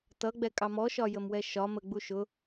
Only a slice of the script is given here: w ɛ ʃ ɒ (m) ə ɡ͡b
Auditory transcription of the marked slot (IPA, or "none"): m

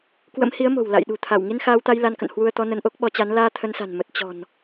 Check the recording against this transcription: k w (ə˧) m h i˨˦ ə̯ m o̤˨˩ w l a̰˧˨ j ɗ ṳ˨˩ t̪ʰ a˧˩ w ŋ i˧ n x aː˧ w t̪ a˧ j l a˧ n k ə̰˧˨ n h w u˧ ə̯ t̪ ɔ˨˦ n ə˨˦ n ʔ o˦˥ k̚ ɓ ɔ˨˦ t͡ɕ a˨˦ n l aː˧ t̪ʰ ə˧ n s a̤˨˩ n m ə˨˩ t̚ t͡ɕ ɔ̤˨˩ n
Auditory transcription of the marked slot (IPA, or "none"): ə̰˧˥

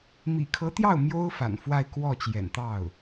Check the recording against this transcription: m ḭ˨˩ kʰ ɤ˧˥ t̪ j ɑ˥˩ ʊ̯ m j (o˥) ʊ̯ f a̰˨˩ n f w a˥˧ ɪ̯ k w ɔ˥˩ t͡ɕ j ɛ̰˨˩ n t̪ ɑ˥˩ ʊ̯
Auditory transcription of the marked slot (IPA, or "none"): o˥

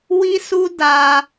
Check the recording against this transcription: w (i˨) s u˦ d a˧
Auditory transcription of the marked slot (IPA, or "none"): i˦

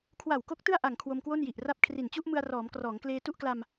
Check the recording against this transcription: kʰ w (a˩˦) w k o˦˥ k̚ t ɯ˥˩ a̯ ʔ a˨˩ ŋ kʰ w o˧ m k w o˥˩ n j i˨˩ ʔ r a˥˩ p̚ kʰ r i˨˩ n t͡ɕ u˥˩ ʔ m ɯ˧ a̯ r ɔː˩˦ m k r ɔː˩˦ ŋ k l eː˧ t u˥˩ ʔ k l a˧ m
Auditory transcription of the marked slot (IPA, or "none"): a˨˩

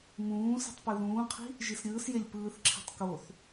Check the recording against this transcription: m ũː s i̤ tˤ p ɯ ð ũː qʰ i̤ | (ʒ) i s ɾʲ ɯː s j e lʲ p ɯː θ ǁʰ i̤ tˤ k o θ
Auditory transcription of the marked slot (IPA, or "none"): ʒ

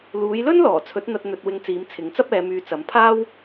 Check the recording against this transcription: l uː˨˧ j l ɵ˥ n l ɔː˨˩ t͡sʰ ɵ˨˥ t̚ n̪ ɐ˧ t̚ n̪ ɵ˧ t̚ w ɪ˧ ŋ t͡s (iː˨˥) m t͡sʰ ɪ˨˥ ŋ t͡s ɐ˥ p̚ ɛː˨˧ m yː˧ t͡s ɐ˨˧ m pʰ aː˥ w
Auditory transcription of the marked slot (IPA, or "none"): iː˨˧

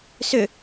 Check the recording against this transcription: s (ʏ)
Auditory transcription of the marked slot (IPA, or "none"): ʏ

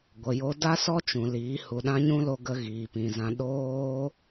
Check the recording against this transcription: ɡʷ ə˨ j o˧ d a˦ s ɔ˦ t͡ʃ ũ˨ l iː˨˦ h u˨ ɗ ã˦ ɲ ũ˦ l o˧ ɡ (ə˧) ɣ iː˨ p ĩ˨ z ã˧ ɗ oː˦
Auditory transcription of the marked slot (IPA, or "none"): ə˧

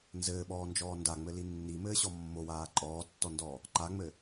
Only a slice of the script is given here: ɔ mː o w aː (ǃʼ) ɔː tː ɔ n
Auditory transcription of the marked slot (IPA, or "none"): ǃʼ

